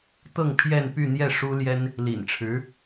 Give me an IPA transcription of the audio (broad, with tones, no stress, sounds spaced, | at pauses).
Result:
t̪ ɤ˥˧ ŋ pʰ j ɛ˥˧ n p y˥˧ n̪ j ɛ˥˩ ʂ u˥ l j ɛ˥ n | l ḭ˨˩ n ʈ͡ʂʰ ɻ̩˧˥